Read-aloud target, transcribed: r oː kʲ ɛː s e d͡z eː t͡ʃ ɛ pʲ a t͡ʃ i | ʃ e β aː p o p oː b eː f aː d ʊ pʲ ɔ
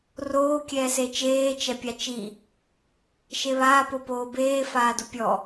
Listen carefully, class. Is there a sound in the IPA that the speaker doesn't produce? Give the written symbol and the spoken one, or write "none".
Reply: d͡z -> t͡ʃ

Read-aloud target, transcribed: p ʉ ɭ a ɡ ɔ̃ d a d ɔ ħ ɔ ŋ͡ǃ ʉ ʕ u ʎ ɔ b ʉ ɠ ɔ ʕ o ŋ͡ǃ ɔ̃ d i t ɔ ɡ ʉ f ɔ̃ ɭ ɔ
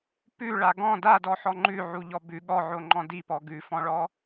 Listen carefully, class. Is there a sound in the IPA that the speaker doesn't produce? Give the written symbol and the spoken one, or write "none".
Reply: t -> p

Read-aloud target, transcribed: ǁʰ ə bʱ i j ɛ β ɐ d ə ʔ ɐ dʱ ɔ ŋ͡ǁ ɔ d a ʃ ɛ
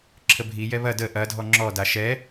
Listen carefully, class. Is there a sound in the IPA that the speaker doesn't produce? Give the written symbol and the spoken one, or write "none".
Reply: none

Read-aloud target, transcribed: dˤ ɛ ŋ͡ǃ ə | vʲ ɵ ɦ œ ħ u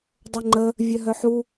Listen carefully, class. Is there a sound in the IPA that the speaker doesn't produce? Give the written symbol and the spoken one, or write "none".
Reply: ɵ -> œ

